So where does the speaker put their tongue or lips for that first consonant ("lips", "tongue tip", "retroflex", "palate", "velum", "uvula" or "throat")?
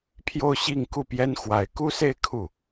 lips